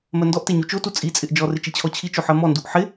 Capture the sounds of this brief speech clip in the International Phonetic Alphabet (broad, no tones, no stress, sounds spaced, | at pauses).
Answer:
m ɜ n d ɔ ʔ t e ɲ u t͡ʃ o t u t͡sʼ i t͡sʼ ɪ ʔ d͡ʒ ɔ r ɪ t͡ʃ i t͡ɕʰ ɔ t͡ɕʰ i t͡ʃ o ħ ɜ m ɔ n d u ʔ ħ ɪ